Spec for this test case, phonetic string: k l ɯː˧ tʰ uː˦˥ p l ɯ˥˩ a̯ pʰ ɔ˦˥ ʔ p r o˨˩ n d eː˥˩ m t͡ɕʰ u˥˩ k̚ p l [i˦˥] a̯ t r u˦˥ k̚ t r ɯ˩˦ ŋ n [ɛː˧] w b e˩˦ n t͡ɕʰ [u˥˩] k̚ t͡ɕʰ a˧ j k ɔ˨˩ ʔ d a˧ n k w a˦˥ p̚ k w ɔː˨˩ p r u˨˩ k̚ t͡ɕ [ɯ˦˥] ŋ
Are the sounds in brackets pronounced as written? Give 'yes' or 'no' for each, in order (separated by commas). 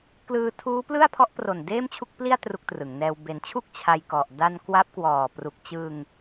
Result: no, yes, yes, no